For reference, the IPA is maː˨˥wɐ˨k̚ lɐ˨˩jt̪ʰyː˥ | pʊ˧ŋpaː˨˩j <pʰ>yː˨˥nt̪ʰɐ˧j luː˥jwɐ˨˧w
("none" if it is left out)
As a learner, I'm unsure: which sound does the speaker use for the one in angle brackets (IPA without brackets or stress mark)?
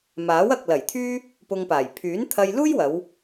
pʰ